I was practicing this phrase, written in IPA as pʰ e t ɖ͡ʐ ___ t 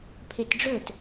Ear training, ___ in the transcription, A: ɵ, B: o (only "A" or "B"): A